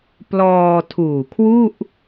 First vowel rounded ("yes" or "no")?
yes